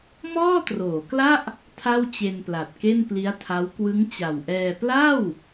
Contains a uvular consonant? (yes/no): no